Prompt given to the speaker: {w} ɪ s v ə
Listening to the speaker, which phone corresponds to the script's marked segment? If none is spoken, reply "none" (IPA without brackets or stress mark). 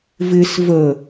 v